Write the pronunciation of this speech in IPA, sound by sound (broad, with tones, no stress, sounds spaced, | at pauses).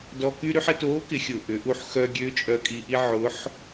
d ɔ˧ k y˥ ɾ y˥ ħ ə˧ t oː˧˥ k ɪ˩˧ xʲ ʊ˩ ʔ ʏ˩˧ ʔ u˧ ħ x œ˧ ɡʲ ø˧˥ t͡ʃʼ œ˧ kʼ i˧ ʔ i˥ ʕ ʊ˧˥ ħ